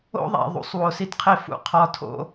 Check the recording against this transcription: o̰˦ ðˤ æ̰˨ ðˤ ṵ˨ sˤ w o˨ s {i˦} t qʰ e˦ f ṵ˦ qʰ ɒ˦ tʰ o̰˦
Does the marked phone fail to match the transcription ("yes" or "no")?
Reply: no